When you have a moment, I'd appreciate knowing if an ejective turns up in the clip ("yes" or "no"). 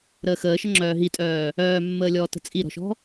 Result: yes